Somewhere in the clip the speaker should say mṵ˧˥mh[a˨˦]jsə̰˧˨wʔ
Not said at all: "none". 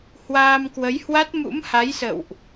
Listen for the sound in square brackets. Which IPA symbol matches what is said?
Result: a˨˦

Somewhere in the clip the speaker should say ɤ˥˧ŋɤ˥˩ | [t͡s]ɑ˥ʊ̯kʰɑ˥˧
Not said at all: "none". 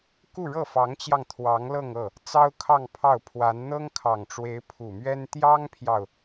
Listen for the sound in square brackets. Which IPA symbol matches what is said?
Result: t͡s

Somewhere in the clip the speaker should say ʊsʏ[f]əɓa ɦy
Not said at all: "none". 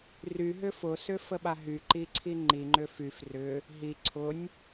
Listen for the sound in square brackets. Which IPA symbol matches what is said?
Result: f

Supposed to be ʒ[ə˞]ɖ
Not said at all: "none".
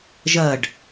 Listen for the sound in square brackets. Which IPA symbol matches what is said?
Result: ɐ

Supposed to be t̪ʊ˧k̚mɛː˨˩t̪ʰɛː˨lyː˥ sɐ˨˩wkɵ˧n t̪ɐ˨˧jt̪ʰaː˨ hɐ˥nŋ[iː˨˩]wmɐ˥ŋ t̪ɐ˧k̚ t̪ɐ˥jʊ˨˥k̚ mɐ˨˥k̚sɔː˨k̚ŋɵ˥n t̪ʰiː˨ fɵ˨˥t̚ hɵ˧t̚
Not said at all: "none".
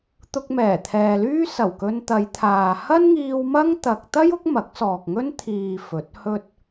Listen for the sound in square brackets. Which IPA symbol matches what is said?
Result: iː˧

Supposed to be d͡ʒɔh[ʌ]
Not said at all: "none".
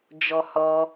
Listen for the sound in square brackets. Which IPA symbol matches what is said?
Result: ɔ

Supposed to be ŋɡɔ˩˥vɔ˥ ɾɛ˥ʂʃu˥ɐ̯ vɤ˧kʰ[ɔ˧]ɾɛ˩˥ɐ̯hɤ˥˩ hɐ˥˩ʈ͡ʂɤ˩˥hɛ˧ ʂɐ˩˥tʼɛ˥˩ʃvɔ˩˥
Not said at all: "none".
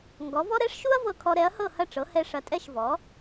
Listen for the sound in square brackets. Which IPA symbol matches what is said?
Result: ɔ˧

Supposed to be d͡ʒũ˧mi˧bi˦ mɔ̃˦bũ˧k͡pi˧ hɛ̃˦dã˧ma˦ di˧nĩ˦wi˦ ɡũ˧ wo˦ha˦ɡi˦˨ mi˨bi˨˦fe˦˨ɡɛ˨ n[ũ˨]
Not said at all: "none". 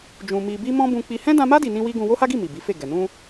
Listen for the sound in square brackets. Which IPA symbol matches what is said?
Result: ũ˧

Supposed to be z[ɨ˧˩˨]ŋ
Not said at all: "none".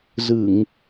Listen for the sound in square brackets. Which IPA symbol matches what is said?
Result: ɨ˧˩˨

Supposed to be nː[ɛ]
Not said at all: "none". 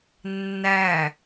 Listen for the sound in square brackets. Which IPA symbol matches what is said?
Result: æ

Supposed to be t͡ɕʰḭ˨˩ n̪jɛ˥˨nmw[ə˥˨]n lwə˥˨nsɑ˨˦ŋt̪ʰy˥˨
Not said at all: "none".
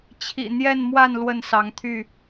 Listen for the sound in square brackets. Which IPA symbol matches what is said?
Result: a˥˨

